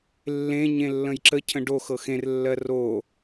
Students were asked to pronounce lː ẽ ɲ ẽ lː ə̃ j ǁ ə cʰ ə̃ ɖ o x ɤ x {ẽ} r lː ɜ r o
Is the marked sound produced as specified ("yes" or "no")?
yes